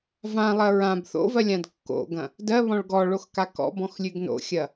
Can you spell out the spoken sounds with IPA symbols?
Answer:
v ã lˠ ɜ ɹ ã b θ o̰ v ɜ lʲ ã d kː o̰ ɡ ɐ̃ | d ɜ β ɔ̃ ɭ ɡ ɔ ɭ o x k a k ɔ̰ b ɔ̃ x lʲ ʉ ɡ n o̰ xʲ ɐ

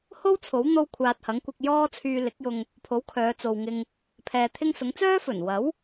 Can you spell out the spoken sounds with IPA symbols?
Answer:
h o˥ w t͡sʰ o˨˥ w n̪ o˥ w kʷʰ aː˧ t̚ h ɐ˨˥ ŋ kʷ ɪ˧ k̚ j ɔː˥ t͡sʰ yː˧ l ɪ˨˥ k̚ j ʊ˧ ŋ | pʰ o˨˥ w kʰ œː˨˧ t͡s o˨ w ŋ ɪ˧ ŋ | pʰ ɛː˨ t̪ʰ ɪ˥ ŋ s ʊ˨˥ ŋ t͡s œː˥ f ɵ˨˩ n w ɐ˨˥ w

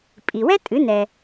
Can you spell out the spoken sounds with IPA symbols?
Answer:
pʼ i˩ w ɛ˥ tʼ ɨ˩˥ n ɛ˩

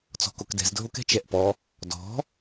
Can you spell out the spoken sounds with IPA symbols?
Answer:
t͡s ɔ̤ k o k d ɛ̤ z dʱ o k ɛ̤ t͡ʃ ɛ ʔ p ɔ | d ɔ̤

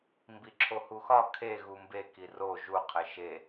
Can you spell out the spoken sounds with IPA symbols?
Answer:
m b i ǁʰ o h u x ɒ kʰ e ɣ u m b e k i r o ʒ u qʰ e ʃ e

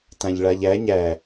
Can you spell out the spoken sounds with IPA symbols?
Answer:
t ã ʎ ɭ a ʎ æ ɲ æ

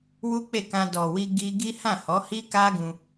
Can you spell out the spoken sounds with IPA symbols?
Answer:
w u˦ k͡p e˦˨ k ã˧ d ɔ˨ w i˧ ɡ i˦ ɡ i˦ h ã˦˨ h ɔ˨˦ h i˦ k a˦ ɡ ũ˧

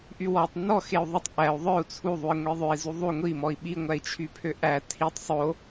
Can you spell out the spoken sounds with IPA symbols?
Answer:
ʔ y w ɔ tˤ n ɔ x e u̯ ðˤ ɵ tˤ ʔ æ u̯ ðˤ œ u̯ t͡sʰ u ðˤ u i̯ ŋʷ i ðˤ ø i̯ z u ðˤ u ŋʷ i m ɔ i̯ ɓ i ŋʷ æ i̯ t͡ʃʰ y pʰ ø ʔ æ tʰ i tˤ sˤ o

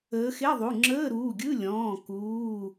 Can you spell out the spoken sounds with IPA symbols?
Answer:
əː˨˦ x e˧˥˧ ðˤ u˩˧˩ ŋ͡ǁ əː˧˥˧ ɾ uː˩˧˩ ɡʲ ɯ˧˥˧ lʲ ɔ̃ː˩˧˩ k uː˩˧˩

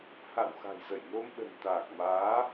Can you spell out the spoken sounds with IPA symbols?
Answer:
h a̰˧˨ w x a̤˨˩ j z ə˧˩ j n o˧ m ɗ ə̤˨˩ n t̪ aː˨˩ k̚ m aː˨˦

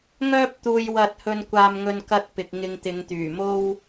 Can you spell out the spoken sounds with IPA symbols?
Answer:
ŋ œː˥ p̚ t̪ uː˧ j w ɐ˧ t̚ h ɵ˧ n kʷ aː˧ m ŋ ɵ˧ n k ɐ˧ t̚ p ɪ˨ k̚ ŋ ɪ˧ ŋ t̪ ɪ˨˧ ŋ t̪ yː˨˩ m o˥ w

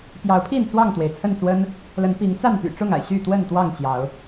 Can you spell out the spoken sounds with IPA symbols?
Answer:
p j ɑ˨˦ ʊ̯ pʰ i˥˨ n t͡s w ɑ˥˨ ŋ t̪ w e˩ ɪ̯ t͡sʰ ə˥˨ n t͡s w ə˦ n | l ə˨˦ n p i˨˦ ŋ t͡s a˥˨ n p y̰˨˩ ʈ͡ʂ ʊ˥˨ ŋ a̰˨˩ ɪ̯ ɕ y˥˨ t̪ w ə˥˨ n t̪ w ɑ˥˨ ŋ t͡ɕ j ɑ˨˦ ʊ̯

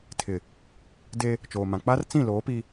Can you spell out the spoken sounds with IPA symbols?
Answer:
tʰ ɪ˨ | d e˦ | t͡ʃ oː˨ m ã˨ k͡p a˦ r t͡s ĩ˦˨ l oː˨˦ p i˦

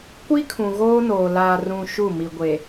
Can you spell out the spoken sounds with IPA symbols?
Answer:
kʷ i˦ kʰ ũ˨ ɣ oː˦ n oː˨ l a˨ r ũ˨ ʃ u˦˨ m i˨ ɡʷ e˨

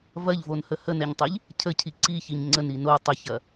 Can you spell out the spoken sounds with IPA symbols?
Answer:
v ɐ ʎ v o n h ə h ə n ɛ ɲ tˤ i ʎ | cʰ ə cʰ i ǀ i ç i ɲ ŋ͡ǀ ə n i n o tˤ ɐ ç ɐ

